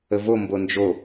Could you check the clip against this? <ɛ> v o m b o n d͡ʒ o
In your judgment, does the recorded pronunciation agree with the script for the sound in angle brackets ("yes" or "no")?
no